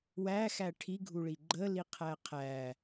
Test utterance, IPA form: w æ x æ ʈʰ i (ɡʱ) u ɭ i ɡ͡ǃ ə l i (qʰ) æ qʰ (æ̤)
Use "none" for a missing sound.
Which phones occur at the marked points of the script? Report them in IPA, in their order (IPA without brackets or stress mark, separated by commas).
ɡʱ, qʰ, æ